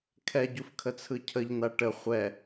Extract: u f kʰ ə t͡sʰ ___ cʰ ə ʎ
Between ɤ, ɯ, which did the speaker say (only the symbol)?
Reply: ɯ